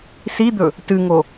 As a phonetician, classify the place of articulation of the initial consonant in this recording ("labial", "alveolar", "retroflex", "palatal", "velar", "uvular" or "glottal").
alveolar